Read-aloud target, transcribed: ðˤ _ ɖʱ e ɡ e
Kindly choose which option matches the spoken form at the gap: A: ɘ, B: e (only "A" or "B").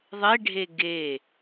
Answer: B